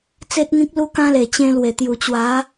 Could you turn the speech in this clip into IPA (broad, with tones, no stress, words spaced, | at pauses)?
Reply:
t͡se˦t̚ŋĩ˦k̚ lu˦kã˦le˨˩ t͡ɕẽ˧ lwe˨˩t̪ju˨˩ t͡ɕwa˨˦